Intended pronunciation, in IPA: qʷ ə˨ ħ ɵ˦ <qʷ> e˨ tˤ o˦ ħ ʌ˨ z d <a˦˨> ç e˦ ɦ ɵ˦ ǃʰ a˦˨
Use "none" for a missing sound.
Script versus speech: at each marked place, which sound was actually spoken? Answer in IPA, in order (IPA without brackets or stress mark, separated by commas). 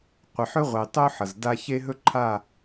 ʁʷ, a˦